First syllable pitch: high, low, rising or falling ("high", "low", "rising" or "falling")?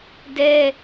high